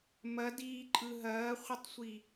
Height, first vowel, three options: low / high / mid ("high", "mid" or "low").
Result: low